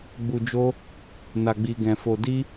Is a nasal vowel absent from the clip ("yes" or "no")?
no